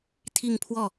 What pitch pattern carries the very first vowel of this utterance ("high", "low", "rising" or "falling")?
falling